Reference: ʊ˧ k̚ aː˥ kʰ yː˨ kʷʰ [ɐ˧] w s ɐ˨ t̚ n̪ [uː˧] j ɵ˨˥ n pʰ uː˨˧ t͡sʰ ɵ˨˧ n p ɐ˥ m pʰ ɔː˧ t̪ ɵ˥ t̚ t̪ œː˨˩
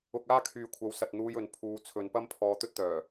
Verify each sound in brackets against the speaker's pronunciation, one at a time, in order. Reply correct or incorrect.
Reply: incorrect, correct

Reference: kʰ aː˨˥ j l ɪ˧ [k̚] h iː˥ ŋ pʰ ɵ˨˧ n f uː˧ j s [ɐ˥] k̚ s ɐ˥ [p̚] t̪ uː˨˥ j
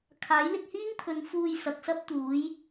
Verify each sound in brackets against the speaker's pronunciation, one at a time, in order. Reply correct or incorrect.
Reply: correct, incorrect, correct

